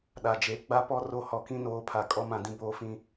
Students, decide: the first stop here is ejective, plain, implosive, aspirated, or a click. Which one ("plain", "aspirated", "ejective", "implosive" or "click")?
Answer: implosive